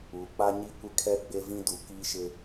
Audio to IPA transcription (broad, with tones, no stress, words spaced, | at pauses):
uː˨k͡pa˦ ɲi˦˨kʷɪ˦kʰɛ˦ ɡ͡be˦vĩ˦ du˨ki˦ʃɪ˦